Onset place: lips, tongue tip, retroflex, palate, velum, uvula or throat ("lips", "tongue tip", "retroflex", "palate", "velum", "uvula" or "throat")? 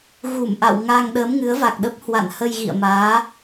velum